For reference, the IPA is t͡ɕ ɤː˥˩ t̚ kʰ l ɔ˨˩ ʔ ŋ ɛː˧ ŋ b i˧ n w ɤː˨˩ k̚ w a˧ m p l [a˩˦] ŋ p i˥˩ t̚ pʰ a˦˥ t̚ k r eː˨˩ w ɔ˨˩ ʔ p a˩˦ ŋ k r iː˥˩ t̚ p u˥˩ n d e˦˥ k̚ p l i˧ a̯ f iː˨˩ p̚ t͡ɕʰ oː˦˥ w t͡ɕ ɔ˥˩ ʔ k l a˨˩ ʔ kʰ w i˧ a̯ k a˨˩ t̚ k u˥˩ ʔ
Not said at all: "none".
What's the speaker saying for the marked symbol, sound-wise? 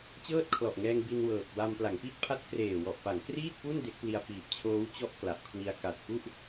a˩˦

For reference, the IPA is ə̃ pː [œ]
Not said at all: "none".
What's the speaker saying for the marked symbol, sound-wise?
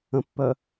œ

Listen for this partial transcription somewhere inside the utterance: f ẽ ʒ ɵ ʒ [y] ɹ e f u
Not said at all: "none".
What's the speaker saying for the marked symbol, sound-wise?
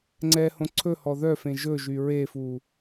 y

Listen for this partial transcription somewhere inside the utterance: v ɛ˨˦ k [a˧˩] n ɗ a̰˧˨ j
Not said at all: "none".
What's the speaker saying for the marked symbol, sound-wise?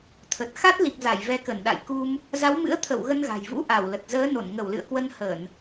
ə˧˩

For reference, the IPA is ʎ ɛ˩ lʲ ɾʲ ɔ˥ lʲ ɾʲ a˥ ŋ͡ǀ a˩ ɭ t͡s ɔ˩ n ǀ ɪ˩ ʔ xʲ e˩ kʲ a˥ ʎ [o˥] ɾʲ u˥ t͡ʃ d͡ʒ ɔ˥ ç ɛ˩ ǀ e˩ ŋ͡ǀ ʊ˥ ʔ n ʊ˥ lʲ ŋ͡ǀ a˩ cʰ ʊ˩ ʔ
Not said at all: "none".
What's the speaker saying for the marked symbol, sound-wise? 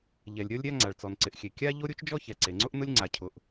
o˥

